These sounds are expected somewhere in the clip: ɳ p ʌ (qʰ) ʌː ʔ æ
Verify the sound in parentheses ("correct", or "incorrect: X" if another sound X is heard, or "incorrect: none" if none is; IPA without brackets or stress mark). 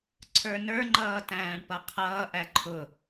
correct